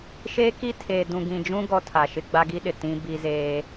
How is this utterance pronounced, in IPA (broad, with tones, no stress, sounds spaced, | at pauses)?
ʃ eː˦ k i˦ tʰ eː˨ d ũ˨ ɡ ĩ˨ d͡ʒ ũ˦ ɡ ɔ˦ tʰ a˨ ʃ ɪ˦ ɡ͡b a˦ ɡ i˦ ɗ ɪ˨ t ĩ˦ b i˦ z eː˦